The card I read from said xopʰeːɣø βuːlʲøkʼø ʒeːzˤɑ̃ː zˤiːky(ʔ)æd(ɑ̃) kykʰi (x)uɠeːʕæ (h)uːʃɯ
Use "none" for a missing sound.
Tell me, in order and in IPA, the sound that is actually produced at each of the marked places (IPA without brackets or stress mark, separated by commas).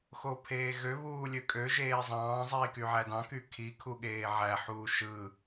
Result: ʕ, ɑ̃, kʰ, ħ